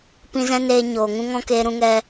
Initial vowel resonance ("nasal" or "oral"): nasal